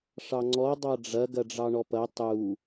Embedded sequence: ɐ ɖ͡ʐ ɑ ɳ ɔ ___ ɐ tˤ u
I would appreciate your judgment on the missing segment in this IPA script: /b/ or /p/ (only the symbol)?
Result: p